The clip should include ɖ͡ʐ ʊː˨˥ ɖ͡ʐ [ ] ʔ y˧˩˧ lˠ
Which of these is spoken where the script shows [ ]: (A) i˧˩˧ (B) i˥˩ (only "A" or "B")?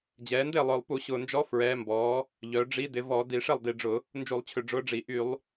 A